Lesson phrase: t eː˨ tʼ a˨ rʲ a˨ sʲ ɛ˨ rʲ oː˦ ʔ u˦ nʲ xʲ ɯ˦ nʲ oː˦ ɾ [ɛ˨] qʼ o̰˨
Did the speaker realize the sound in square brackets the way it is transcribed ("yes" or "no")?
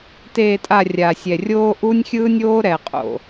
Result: yes